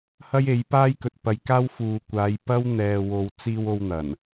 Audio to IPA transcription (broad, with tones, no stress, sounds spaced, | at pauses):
h ɐ˥ j e˨˥ j p aː˥ j k ɵ˨ t̚ p ɐ˨˧ j k aː˥ w f uː˨ kʷ aː˨˧ j p ɐ˥ w n̪ ɛː˨ w o˨˧ w t͡s iː˧ w o˧ w n̪ ɐ˨˩ n